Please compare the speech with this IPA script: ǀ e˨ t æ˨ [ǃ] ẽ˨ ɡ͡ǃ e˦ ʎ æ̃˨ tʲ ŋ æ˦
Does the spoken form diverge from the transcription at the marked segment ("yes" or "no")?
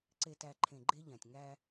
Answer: yes